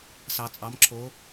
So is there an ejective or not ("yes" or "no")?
yes